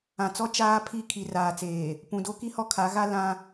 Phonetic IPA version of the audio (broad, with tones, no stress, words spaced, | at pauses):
ã˨t͡sɔ˦ t͡ʃaː˦pʰi˦˨ kʰi˨raː˨t͡seː˨ | pũ˨do˦ ki˦hɔ˦kʰa˨˦ ɣa˦ lã˦